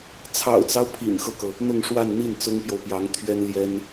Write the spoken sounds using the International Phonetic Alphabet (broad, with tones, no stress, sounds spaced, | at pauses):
t͡sʰ ɑ̰˨˩ ʊ̯ t͡s ɑ˦ ʊ̯ pʰ ḭ˨˩ n x ɤ˦ k ɤ˩ | n̪ ʊ˥˧ ŋ ʂ w a˥˧ n n̪ i˥˩ n t͡s ʊ˥ ŋ p j o˨ ʊ̯ p j ɑ˧˥ ŋ t̪ʰ ɥ ɛ˥ n l j ɛ˥ n